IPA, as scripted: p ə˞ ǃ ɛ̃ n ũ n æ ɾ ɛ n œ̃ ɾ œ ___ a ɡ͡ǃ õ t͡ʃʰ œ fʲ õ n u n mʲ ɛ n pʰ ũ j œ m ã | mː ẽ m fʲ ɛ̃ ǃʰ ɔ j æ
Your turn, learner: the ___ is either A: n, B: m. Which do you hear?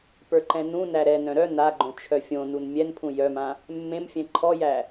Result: A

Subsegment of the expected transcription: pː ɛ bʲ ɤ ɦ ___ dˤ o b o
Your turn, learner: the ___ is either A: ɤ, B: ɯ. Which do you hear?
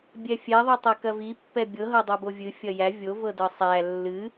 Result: A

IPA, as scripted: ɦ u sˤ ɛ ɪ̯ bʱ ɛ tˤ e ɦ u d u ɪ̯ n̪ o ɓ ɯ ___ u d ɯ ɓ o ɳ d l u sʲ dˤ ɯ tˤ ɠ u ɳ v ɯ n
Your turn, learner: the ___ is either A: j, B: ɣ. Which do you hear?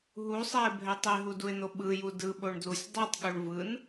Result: A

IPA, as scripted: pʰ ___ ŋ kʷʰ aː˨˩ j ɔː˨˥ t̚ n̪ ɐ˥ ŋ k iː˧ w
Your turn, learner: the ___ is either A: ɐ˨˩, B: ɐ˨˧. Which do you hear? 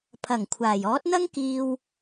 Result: A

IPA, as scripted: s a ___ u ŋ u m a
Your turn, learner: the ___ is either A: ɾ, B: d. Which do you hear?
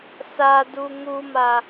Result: B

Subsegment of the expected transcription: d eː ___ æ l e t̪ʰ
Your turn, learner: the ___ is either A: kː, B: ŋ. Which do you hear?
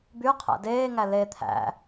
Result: B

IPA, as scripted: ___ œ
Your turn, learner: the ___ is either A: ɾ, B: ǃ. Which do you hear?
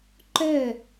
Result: B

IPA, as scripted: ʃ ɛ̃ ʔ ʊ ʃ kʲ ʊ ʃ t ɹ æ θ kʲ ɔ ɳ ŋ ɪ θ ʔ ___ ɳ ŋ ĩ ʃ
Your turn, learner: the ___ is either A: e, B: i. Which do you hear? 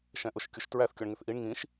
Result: B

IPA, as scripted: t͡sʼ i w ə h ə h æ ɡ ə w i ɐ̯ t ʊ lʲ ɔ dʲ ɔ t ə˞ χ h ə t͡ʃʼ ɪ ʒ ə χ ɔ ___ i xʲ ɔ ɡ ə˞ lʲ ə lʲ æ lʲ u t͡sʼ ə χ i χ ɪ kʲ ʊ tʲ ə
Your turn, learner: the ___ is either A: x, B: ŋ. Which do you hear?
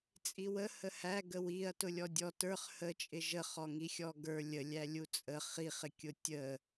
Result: B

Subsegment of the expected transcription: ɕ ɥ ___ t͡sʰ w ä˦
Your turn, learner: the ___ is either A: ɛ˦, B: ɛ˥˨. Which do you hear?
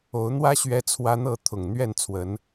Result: A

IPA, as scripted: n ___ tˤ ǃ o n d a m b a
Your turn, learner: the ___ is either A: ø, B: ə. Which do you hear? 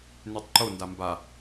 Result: A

